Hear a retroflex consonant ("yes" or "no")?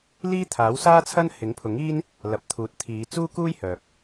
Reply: no